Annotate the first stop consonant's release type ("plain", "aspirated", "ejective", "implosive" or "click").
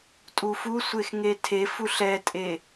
ejective